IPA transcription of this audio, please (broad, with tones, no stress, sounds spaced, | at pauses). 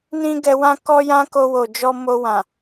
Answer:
n ĩ˦ ɡ ɛ˧ w ã˦ k ɔ˦ j ã˦ k o˧ w o˨ d͡ʒ ɔ˧ m o˧ w ã˨